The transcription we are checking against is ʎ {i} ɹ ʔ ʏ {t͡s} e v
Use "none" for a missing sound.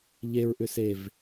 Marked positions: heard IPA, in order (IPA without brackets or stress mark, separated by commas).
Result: e, s